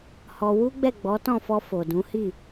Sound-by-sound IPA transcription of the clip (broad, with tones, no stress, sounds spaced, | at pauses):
h ɔ˧ w u˦ ɡ͡b ɛ˦˨ ɡ͡b ɔ˨˦ t ɔ̃˦˨ f ɔ˧ f o˨ d ũ˨˦ h i˦˨